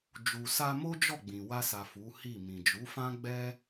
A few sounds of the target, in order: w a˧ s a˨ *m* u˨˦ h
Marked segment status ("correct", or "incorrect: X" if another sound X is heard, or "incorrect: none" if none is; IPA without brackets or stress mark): incorrect: f